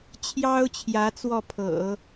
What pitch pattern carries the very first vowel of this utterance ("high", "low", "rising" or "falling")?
high